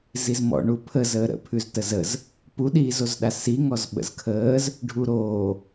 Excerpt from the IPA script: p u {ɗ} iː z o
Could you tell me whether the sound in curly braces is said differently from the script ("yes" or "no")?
no